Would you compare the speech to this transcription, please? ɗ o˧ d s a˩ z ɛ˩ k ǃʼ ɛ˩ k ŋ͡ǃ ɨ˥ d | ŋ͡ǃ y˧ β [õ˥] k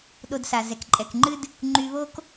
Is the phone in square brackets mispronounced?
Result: yes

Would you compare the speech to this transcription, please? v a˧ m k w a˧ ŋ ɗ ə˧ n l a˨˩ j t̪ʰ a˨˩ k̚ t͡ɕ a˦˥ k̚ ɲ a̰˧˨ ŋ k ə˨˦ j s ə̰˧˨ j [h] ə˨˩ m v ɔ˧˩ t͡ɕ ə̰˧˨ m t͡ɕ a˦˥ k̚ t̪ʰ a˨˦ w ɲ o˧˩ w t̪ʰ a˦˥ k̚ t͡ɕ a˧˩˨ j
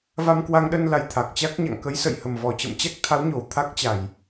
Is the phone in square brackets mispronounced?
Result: no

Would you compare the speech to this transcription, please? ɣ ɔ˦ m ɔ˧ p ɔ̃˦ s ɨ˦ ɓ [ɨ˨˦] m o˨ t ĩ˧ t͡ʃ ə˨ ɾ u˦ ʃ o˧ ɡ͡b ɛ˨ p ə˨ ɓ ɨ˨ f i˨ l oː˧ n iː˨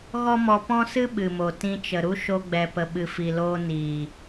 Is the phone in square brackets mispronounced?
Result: yes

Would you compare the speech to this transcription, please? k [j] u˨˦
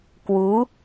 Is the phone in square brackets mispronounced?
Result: yes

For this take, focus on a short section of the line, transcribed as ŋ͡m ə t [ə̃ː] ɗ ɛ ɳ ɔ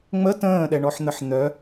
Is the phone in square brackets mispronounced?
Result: no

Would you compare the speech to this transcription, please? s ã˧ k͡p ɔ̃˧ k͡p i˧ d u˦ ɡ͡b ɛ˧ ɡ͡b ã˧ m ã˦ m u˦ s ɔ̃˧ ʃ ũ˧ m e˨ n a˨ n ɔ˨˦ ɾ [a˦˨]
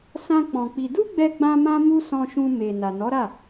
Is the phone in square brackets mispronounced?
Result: no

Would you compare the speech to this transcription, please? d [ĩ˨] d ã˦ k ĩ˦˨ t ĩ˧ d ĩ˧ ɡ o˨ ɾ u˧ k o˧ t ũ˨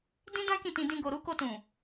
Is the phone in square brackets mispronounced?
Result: yes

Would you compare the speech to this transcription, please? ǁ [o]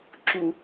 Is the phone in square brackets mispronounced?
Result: yes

